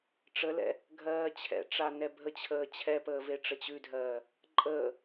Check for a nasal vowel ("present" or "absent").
absent